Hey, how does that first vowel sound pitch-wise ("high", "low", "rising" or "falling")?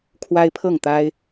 high